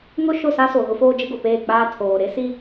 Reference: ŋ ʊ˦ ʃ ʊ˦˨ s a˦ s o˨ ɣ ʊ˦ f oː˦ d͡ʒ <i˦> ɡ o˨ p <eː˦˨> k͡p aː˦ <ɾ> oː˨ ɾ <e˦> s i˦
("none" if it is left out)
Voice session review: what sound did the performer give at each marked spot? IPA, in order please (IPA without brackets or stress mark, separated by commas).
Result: ɪ˦, eː˦˨, tʰ, e˦